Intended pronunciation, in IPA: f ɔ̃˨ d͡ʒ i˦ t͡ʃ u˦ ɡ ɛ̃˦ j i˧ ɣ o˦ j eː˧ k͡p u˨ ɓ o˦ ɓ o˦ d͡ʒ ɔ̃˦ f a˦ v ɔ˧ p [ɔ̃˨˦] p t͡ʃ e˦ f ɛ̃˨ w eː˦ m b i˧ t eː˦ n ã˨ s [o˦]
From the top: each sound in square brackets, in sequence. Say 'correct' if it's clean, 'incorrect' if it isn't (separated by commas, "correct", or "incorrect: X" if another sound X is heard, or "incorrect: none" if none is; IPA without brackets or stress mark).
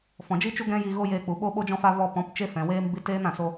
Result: correct, incorrect: o˧